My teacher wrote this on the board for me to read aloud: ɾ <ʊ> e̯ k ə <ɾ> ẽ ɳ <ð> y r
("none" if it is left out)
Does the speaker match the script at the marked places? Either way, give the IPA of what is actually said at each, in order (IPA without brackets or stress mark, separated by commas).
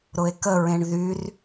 ʊ, ɹ, ð